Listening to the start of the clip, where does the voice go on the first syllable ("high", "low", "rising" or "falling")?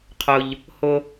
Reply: low